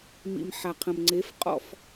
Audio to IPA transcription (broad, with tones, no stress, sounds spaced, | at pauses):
m ḭ˨ m ħ a˨ qʰ ə̃˨ m ŋ͡ǀ e˨˦ f qʼ ɔ̰˦˨ f